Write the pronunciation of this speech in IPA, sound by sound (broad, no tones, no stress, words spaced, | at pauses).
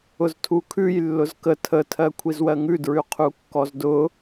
ʊztʰukʰʉj lːʊzkə tʰə tʰɜkʷʰizwɜŋʉ dɹʉqʰukːɔzdʊ